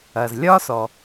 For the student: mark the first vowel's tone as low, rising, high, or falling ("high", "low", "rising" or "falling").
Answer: low